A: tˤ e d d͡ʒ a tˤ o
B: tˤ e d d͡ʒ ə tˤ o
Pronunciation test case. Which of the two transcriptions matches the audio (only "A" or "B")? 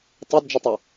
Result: B